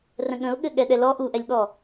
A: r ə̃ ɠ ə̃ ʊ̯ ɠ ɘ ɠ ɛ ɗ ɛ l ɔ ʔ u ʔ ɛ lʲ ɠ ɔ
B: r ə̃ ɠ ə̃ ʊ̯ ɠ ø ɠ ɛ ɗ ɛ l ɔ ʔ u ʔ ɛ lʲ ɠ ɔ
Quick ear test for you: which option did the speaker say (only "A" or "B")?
A